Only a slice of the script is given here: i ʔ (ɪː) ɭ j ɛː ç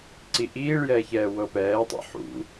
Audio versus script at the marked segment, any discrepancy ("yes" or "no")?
yes